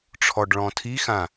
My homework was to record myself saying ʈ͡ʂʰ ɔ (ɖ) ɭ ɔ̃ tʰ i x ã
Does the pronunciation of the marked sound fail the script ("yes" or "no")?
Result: no